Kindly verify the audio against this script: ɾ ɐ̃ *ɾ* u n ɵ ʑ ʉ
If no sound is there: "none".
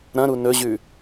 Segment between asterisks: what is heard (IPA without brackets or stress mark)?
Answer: ɾ